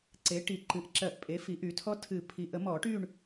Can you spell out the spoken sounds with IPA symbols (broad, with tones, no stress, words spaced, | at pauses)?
ǀe˩˥ ʈi˨˩˦ ǃɨ˨ʔǁɜ˨˩˦ʔpʼe˩˥ fi˩˥ʔy˩˥tʰɔ˦˥ tʰɨ˨˩˦pʰi˨ ʔə˨˩˦ mɔ˨˩˦ʈy˦˨ɳ